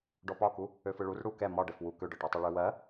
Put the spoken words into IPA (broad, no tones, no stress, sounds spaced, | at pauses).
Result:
ɖ ɔ p ɒ k u | ø f ɯ ɭ u r ɽ u k ɛ m ɒ ɖ ɛ f w u k ø ɖ ɒ ʈ ɔ tˤ ɛ ɭ ø w ɜ